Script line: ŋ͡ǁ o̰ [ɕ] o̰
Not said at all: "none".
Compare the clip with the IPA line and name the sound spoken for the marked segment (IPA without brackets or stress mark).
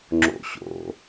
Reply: ɕ